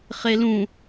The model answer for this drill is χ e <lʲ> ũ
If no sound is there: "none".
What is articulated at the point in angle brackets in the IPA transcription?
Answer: l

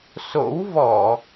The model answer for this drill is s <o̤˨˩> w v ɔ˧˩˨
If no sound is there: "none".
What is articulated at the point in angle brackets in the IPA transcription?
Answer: o̰˧˥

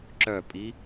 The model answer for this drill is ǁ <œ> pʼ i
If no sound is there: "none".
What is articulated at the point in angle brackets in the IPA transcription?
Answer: œ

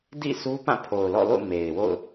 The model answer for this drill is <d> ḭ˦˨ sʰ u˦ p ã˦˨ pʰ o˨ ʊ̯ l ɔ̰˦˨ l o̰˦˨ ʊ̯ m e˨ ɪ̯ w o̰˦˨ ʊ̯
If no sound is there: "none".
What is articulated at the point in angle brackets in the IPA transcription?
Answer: d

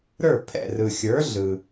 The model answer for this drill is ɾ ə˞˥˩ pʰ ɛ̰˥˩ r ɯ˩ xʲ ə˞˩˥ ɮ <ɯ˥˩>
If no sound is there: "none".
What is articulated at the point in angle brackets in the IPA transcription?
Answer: ɯ˩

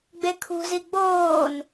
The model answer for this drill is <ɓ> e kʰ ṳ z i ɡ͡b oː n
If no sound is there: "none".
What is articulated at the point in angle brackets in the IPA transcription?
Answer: ɡ͡b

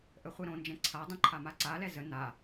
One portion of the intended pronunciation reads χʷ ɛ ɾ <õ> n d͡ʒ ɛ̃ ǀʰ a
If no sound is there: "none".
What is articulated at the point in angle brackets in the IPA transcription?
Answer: õ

